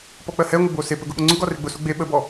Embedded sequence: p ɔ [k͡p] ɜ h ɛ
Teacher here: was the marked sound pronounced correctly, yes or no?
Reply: yes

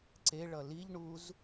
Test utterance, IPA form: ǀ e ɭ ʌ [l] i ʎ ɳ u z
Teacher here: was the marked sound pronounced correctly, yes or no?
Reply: yes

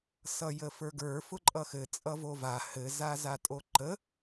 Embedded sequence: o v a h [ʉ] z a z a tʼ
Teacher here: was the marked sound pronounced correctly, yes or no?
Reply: no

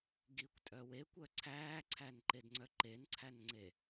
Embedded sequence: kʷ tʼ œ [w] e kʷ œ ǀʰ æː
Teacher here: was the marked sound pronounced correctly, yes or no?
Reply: yes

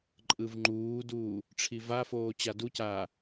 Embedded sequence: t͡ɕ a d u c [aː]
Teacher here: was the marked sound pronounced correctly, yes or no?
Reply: yes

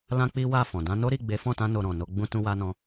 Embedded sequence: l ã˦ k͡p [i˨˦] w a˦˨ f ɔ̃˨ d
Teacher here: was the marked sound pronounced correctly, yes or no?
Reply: no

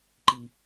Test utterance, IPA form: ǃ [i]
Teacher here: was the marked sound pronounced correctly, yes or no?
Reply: yes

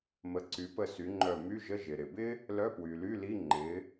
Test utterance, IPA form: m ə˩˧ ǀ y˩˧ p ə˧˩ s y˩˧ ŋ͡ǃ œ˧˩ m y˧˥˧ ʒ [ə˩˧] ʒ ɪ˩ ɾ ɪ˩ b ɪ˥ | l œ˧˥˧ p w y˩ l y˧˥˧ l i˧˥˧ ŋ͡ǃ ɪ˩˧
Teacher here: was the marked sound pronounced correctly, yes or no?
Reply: no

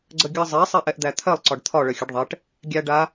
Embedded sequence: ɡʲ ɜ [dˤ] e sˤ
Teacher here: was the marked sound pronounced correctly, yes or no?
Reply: no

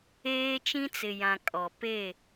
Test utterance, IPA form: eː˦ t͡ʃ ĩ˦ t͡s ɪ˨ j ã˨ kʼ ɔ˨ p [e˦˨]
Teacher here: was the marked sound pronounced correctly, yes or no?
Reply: yes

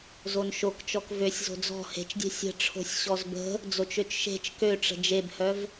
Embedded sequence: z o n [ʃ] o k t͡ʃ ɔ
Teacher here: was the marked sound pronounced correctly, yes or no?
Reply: yes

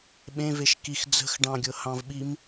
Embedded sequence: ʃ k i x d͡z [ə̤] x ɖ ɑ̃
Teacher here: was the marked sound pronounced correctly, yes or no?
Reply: yes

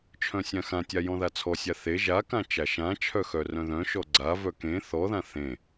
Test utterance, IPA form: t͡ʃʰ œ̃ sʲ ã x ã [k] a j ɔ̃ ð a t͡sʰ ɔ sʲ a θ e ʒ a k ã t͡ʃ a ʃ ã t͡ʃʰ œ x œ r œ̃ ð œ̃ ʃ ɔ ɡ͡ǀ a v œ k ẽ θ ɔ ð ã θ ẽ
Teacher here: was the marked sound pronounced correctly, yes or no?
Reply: no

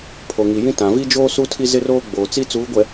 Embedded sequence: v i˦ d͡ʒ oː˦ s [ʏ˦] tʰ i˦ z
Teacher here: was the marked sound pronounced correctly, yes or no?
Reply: no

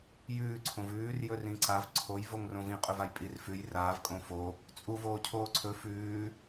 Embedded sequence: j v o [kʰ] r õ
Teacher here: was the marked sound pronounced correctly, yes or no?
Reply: no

